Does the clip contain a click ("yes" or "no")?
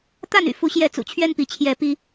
no